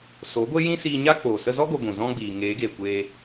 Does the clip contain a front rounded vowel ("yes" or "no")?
no